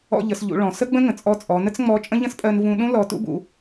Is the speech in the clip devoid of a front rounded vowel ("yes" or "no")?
yes